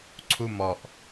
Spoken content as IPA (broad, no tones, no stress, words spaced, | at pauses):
ǀʰumɔʔ